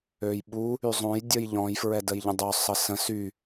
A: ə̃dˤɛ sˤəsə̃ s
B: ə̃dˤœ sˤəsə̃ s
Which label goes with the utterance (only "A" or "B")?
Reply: B